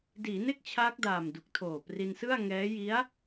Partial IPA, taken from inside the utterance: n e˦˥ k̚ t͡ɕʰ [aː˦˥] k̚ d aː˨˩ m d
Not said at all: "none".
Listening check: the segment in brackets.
aː˦˥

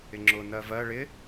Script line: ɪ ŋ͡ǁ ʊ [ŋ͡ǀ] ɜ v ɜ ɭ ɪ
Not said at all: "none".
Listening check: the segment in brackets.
n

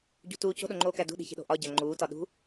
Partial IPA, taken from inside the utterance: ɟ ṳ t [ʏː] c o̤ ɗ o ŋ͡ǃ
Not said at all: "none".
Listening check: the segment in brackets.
uː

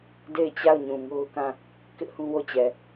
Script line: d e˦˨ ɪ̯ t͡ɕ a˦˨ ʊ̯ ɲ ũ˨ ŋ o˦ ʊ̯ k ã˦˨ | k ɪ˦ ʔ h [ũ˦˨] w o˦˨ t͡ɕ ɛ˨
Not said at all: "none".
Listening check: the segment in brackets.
ũ˦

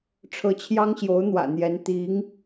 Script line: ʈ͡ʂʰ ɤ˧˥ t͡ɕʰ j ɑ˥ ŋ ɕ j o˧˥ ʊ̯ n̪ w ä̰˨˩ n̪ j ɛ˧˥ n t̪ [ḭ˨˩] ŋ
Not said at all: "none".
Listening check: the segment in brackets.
i˧˥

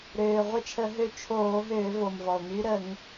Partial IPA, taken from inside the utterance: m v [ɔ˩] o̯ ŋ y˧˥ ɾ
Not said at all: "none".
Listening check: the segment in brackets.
ɔ˩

